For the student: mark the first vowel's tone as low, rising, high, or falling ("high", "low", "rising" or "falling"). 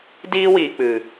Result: high